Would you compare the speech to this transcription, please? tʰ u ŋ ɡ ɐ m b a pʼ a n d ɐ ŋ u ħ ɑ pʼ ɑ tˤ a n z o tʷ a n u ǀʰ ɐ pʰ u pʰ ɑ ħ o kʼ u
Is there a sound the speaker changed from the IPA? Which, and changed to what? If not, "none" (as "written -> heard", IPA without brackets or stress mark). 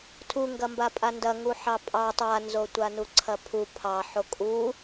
none